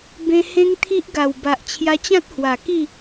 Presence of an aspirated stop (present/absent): present